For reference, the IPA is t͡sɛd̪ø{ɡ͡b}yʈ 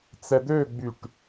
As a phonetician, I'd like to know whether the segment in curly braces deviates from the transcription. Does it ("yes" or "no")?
no